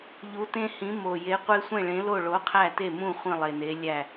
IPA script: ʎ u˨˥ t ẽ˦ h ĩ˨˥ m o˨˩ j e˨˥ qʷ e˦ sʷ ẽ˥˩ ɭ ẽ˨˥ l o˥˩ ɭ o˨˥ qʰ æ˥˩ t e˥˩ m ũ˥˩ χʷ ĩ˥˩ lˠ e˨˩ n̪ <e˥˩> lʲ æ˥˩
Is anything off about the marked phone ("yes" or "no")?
yes